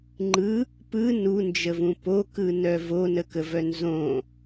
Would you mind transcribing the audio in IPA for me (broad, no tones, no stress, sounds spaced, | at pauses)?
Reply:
ŋ͡ǃ ɯ | p ɯ n u n d͡ʒ ə v ũ p o k ɯ n œ v o n ə k ə v œ n z õ